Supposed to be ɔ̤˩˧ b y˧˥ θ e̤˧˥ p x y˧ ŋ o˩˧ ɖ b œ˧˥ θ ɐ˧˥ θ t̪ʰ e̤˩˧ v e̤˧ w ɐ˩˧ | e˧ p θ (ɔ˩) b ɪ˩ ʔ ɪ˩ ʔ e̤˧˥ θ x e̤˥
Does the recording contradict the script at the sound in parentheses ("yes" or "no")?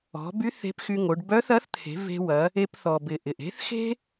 no